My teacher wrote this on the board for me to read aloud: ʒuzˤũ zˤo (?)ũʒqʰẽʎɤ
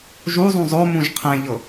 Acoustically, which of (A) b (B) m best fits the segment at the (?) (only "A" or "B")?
B